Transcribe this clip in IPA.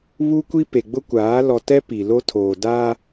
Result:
β u˦ kʷ i˦ p e˨ ɡ͡b ʊ˦ kʷ aː˨˦ l ɔ˨ t ɛ˦ p i˨ l o˦ tʰ oː˨ d a˦

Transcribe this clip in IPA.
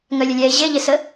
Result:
ŋ œ lʲ ə lʲ ɛ e̯ ʑ e ʎ e s ə

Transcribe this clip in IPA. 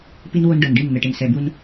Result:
p i˦ n w o˦ n ɖ ɤ˨ n ɖ i˦˨ n n̪ ɛ˨ ʈ e˨ n s ɛ˨ b u˦ n

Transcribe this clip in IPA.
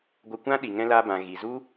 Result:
ɡʷ ə˧ kʷ ã˦ ɗ i˨ ŋ ɛ̃˧ l aː˧ b ã˨ ɣ i˨ z u˦

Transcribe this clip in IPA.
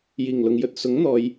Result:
j iː˨˩ ŋ l ʊ˨ ŋ j ɵ˧ t̚ s ʊ˨˥ ŋ n̪ ɔː˨˧ j

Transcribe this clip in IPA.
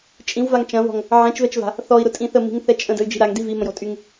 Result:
t͡ʃʼ ĩ w v a ŋ t͡ʃ ɐ̃ v ɔ̤ ŋ | ʕ ɛ̃ t͡ʃ v ɛ t͡ʃ v a̤ | θ ɔ i̯ ɾ ʊ tʼ ĩ θ ə m i̤ ŋ θ ɛ t͡ʃʼ ə̃ d ə̤ y̯ d͡ʒ i̤ ɾ a ŋ d i v i m ə̃ j ɔ̤ tʼ y ŋ

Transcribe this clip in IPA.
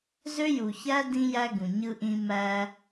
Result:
z ø˦ j u˨ ç æ˦ d ĩ˦ j æ˦ ɡ ũ˨ ɲ ɯ˦ ʔ ĩ˦ m æ˦

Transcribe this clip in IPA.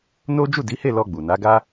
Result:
n o˦ d͡ʒ u˦˨ d i˨˦ h e˦˨ l ɔ˧ ɡ͡b u˨ n a˨˦ ɡ a˦

